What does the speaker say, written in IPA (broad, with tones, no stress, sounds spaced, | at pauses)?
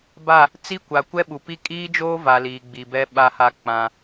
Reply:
b a˦˨ | t͡s i˦ kʷ a˨ kʷ ɛ˦ ɓ u˨ p i˦ kʼ iː˦ d͡ʒ oː˦ v a˨ l iː˨ ɡ͡b i˨ b ɛ˦ ɓ a˦ h a˦ k͡p ã˦